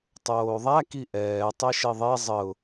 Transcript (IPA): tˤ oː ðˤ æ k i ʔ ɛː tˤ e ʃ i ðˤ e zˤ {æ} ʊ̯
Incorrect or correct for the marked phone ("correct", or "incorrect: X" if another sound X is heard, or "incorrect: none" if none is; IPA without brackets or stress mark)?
incorrect: ə